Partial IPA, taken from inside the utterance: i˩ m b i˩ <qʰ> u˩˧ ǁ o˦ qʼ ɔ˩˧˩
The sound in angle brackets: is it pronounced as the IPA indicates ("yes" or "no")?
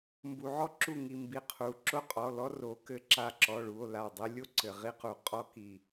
yes